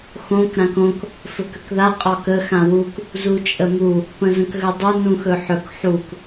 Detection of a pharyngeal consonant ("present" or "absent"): present